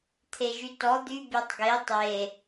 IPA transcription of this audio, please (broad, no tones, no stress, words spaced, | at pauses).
t̪ʰeʒytɔ d̪y bʲetˤɡe tˤe